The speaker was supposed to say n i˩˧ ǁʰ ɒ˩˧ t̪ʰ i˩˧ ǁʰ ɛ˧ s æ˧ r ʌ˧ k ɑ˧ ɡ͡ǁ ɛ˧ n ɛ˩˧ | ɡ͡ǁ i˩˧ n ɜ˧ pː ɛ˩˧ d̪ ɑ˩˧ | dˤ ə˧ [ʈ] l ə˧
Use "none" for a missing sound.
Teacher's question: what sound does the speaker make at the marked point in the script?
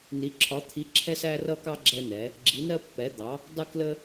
k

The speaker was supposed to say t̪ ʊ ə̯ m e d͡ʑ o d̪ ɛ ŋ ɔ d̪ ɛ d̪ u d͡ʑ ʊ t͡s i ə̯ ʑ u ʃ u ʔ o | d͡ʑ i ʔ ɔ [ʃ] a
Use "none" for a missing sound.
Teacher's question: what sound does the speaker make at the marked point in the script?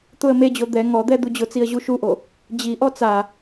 t͡s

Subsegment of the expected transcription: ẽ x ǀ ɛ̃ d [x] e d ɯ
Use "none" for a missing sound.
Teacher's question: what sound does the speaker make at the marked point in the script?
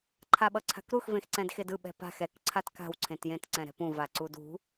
x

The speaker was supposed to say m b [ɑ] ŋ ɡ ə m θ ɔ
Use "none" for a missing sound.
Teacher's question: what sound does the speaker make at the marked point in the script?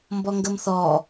ɔ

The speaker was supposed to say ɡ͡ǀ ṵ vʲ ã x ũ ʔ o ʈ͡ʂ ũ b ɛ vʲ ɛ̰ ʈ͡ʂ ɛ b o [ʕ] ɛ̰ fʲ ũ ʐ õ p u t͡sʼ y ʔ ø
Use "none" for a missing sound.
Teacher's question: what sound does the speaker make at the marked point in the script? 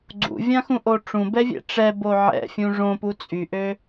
ʕ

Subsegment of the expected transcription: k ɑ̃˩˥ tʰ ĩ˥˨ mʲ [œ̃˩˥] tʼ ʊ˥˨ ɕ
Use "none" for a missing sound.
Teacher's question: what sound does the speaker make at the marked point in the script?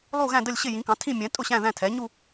ɛ̃˩˥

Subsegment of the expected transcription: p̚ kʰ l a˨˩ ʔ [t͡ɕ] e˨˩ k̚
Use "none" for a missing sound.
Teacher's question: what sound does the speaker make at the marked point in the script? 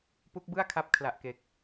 k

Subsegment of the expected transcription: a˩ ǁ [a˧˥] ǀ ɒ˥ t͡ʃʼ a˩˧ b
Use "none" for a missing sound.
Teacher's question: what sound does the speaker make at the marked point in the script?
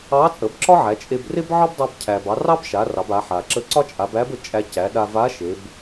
ə˧˥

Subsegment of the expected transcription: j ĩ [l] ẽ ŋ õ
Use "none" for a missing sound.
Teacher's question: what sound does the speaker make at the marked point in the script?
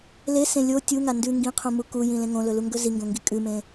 l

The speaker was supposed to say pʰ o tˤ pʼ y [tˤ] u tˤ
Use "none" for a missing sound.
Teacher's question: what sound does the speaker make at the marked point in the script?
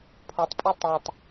tˤ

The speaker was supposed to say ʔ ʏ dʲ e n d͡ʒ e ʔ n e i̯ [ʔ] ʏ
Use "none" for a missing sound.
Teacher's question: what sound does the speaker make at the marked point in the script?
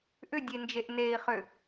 χ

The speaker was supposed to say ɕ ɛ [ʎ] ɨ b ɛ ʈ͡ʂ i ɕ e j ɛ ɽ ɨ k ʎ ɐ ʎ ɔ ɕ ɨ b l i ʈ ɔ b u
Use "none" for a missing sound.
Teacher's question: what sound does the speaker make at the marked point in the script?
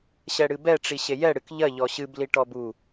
ɽ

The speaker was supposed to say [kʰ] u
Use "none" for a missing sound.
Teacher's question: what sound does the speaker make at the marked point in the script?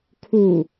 kʰ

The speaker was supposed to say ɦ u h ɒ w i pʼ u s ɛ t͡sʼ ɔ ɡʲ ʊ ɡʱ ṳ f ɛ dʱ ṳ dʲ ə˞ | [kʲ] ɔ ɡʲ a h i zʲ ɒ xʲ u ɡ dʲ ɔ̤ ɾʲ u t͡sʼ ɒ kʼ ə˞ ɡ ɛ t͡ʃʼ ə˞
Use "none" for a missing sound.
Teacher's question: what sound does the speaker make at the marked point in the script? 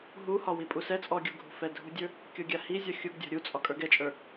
kʲ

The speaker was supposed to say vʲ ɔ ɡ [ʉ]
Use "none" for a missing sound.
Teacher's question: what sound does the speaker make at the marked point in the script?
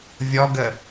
ə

